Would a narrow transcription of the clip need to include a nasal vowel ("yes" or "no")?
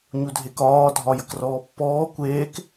no